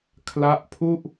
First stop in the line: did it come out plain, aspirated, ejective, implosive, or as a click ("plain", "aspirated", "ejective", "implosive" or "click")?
aspirated